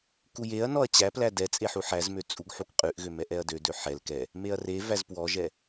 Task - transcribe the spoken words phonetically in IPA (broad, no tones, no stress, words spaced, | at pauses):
kujeɐ̯nɔɐ̯ t͡ɕæplæ dɛ t͡sʼeħuħæzmø t͡sʼuɡħukqʼʉʔɣø mɛʔɛɐ̯dødø ħɛl kɛ | meɐ̯revæz pwɔʒɛ